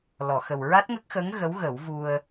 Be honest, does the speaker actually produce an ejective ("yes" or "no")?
no